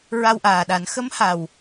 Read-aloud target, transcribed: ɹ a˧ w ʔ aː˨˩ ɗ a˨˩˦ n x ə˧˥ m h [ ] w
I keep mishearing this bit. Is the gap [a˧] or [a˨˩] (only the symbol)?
a˨˩